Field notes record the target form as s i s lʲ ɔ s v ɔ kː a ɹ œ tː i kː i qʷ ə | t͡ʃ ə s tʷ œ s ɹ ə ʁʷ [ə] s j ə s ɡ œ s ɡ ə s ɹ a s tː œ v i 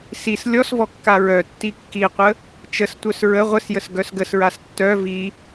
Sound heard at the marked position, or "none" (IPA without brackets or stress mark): ə